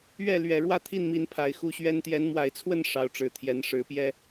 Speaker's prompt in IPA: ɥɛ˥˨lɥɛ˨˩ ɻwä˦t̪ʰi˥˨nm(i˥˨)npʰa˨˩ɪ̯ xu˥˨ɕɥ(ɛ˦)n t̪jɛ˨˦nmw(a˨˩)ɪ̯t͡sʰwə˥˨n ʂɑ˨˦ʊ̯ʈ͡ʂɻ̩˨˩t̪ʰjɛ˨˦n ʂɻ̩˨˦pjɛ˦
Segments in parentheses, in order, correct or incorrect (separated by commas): incorrect, correct, correct